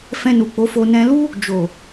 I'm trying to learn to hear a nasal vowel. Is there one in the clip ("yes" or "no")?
yes